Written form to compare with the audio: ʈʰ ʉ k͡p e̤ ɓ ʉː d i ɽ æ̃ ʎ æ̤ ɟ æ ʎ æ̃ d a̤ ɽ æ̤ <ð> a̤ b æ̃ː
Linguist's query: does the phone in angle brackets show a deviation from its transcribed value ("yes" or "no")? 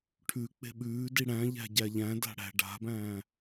yes